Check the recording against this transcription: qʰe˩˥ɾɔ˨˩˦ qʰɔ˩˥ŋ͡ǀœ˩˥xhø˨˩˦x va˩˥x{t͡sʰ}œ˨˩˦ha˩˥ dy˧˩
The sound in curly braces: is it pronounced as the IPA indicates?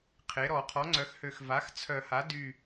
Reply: yes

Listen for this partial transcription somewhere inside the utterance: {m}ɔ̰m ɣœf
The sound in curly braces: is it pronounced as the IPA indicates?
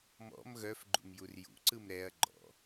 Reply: yes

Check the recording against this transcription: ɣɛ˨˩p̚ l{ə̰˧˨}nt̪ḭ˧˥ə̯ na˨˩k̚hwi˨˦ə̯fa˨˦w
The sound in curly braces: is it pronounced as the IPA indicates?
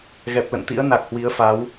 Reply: yes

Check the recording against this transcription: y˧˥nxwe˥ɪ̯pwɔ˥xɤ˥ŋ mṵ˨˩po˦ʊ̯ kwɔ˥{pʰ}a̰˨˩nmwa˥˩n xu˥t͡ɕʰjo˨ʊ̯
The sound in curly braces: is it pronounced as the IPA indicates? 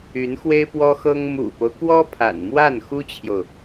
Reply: yes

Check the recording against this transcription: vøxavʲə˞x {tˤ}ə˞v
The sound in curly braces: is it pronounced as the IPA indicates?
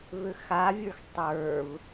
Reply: yes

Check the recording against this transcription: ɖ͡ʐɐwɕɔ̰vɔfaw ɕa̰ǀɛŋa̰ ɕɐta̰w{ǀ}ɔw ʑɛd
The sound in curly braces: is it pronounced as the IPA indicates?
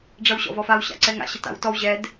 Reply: no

